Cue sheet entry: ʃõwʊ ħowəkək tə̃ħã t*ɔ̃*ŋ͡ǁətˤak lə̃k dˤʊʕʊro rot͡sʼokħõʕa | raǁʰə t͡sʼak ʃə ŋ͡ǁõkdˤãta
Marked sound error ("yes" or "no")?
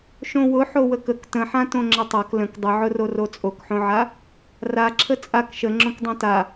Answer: yes